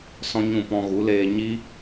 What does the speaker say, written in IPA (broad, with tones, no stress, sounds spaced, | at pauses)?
s ɔ̃˦ ɲ ũ˦˨ p ɔ̃˧ ɣ u˨˦ l eː˧ ɲ i˦